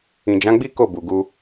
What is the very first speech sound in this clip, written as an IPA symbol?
ĩ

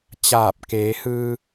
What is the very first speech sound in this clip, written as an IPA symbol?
t͡ɕ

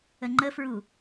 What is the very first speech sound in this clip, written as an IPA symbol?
ə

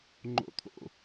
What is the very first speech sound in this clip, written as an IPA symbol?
ŋ͡ǃ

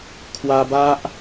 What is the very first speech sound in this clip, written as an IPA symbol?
kʰ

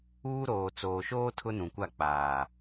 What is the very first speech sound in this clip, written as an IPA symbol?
uː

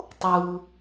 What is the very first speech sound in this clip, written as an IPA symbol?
tˤ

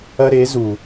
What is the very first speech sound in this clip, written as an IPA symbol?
ɐ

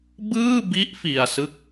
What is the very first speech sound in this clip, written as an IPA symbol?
b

